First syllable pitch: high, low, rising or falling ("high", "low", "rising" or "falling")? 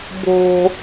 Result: high